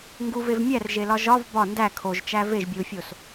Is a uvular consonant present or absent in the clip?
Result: absent